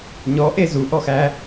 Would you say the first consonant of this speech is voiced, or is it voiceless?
voiced